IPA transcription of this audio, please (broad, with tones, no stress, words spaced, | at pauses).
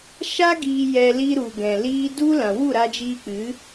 ʃa˦ ɡiː˧jɛ˧ li˧ɾu˨ ɡɛ̃˨liː˦ du˦lã˨ wu˦˨ɾa˧d͡ʒiː˧k͡pɨ˨˦